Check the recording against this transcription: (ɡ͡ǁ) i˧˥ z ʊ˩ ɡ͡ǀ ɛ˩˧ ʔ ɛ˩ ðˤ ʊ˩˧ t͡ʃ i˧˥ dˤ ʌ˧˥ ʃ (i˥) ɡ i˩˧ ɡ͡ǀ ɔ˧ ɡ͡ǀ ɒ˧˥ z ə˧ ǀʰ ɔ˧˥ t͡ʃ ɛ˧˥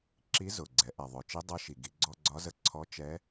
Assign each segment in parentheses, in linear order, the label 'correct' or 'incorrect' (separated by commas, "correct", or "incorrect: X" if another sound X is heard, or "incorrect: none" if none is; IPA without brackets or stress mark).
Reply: incorrect: ǁ, incorrect: i˩